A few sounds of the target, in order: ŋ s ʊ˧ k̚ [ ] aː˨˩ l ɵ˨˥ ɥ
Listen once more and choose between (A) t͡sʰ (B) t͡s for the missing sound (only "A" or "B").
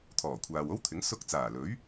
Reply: B